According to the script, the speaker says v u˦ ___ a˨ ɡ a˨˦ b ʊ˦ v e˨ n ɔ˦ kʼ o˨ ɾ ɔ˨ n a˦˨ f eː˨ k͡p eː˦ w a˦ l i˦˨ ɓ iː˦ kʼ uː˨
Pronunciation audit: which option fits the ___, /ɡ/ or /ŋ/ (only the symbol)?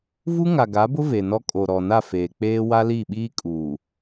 ŋ